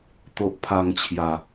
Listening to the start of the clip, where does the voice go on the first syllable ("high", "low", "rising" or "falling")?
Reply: low